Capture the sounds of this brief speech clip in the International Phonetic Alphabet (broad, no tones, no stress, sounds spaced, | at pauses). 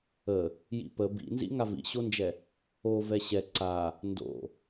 ə | j ḭ p ə b ḭ n z ḭ ŋ a v ḭ ɕ o n d͡ʒ ɛ | o v ɛ ɕ ɛ ǀ a | n d o̰